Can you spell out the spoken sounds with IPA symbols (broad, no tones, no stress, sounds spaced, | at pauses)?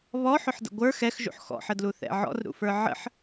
β ɔ ħ ʊ ħ d ə̰ ɡʷ ə˞ x ɛ x ʒ ṵ ħ x ɔ̰ ħ ə d l u θ ɛ̰ ʕ ɔ̰ r ɾ ṵ f ə˞ ʕ ə̰ ħ